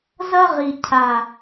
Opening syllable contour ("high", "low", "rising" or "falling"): high